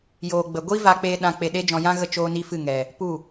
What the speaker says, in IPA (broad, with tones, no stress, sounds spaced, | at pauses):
j oː˨ ɡ͡b ə˨ ɡʷ i˦ v a˧ k͡p e˧ ɗ ã˧ k͡p e˧ ɗ e˦ d͡ʒ ɔ̃˧ j ã˦ ɣ ə˦˨ t͡ʃ oː˦ n i˦ f ɨ˦˨ ŋ ɛ˨ | p u˦˨